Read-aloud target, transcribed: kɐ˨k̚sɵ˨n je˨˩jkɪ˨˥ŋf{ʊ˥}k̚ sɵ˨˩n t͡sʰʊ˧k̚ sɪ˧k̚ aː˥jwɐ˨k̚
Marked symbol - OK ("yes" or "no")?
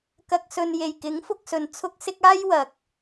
no